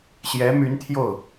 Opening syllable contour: rising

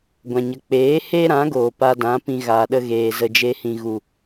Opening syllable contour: low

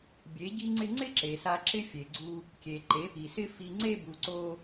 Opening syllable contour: rising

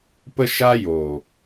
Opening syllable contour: high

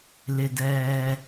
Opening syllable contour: low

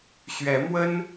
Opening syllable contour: rising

